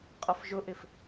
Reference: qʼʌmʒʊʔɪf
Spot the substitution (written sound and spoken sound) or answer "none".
m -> f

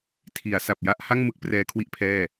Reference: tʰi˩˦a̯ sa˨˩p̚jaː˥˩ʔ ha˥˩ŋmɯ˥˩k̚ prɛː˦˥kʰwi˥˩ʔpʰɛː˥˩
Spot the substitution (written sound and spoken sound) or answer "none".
aː˥˩ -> a˥˩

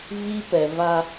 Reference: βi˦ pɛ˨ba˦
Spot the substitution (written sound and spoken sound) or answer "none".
b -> v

